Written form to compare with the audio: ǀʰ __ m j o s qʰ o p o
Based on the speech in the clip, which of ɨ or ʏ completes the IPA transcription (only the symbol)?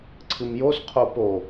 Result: ɨ